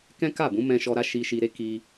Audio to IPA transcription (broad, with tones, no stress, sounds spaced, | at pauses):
k ɛ̃˦ k a˦˨ b ũ˨˦ m ɛ̃˧ ʃ ɔ˧ ɾ a˦ ʃ i˧ ʃ i˧ ɾ e˦ k i˧